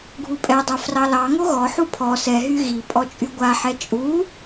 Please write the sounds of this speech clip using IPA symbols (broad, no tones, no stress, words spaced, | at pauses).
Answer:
ɡʱupʼɛdˤɛ frɑlɑŋo ɣɔħu pʰɔ sɛɦy ɣi pʼɔt͡ʃʼyɡʷaħɛ t͡ʃʼu